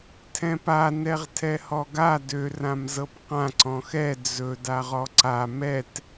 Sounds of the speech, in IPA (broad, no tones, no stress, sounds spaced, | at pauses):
tʰ ɛ̃ p a n ɛ ʁ tʰ ɛ h ɔ ɡ a d ø r ã m z ɤ p q ã ǀ ɔ̃ x ɛ d͡z ɵ d a ʁ ɔ ǀ a m ɛ t